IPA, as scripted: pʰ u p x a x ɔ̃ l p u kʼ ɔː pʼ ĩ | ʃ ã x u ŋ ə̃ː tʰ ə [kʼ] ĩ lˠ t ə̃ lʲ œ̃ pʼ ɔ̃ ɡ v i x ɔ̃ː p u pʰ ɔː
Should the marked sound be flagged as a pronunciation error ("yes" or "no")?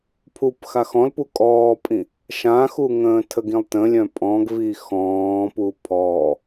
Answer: yes